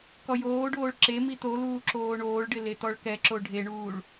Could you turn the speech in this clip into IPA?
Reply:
kɔjoːɖoːɭ ǁemi t̪oluː ǁoːɳoːɭɖɪ let̪ɔɭkɛǁo ɖʱeɳuːɭ

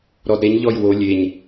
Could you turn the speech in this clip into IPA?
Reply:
ɾɔdɾeɲ ʎɔjwo lʲeɲ

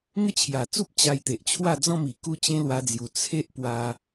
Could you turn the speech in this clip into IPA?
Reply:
ŋə˦t͡ɕʰja˨˩t͡su˦p̚ t͡ɕa˧jt̪e˨ʔt͡ɕʰwa˥˧ d͡zɔ̃˥˧mi˨˩ ku˦t͡ɕẽ˦lwa˧d͡zju˨˩ t͡sʰe˦ʔ pwa˧

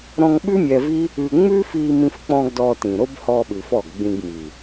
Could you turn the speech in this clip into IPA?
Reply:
ɾɔ̃˧ŋɓʉ˦ mʲɛ˧vi˦ | ʉ˧ ŋ͡mʉ˦fi˧mĩ˧fk͡pɔ̃˧ɡ dɔ˧tĩ˨ɾo˦b hɔ˧ɓʉ˨f ɔ˦˨ɡɡ͡bĩ˧ɡmi˨

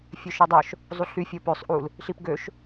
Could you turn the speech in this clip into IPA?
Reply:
fʲøʃidˤœʃ | zˤuɬy fʲopøsˤ ʔul | ɬipɡøʃ

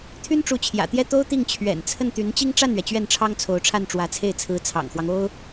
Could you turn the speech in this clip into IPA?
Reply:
t̪ʰy˥nʈ͡ʂu˧˥t͡ɕʰjä̰˨˩t̪jɛ˥˩ t̪o˥ʊ̯ t̪i˥˩ŋt͡ɕʰɥɛ̰˨˩nt͡sʰə˥˩nt̪y˧˥n t͡ɕi˥ŋʈ͡ʂa˥˩nɥɛ˩ t͡ɕɥɛ˥˩nʈ͡ʂʰɑ˥ŋt͡sʰo˧˥ʊ̯ ʈ͡ʂʰa˥˩nʈ͡ʂwä˧˥t͡sʰe˥˩ɪ̯ t͡sʰɹ̩˧˥t͡sʰɑ̰˨˩ŋxwɑ˦ŋ o˥ʊ̯

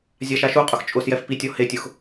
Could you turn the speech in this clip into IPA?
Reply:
zʲaʃaʃuqʼʊx t͡ʃʼʊsjɛf pitʲɔ hetʲʊx

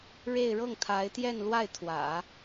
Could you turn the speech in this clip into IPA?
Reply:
ɻe˥˧ɪ̯ ɻɤ˥˩ŋ t̪ʰa˧˥ɪ̯t̪jɛ˥˧n lwa˥˩ɪ̯t̪ʰwä̰˨˩˦

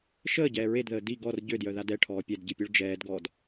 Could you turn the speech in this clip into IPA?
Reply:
ʃəːɟɛː ɹedðəː di ɡɔr ɟødjœða dɛʈʰɔː pʲɛdɟipʲœɭ d͡ʒɛːdɡɔːd

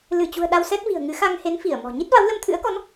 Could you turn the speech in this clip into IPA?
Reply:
lɨ˧˩t͡ɕṳ˨˩ə̯ ɗa˧wsɛ˦˥t̚vi̤˨˩ə̯ ŋɨ˨˦xa˧ŋ he˨˦n fi˧˩ə̯mɔ̤˨˩ ɲi˦˥t̚va˨˦w lə˧mt̪ʰɨ̰˧˥ə̯kɔ˨˦n

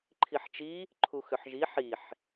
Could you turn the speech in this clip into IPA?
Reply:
ǃʰiħt͡ʃi | ǃʰuxʏħʒi ħiħ

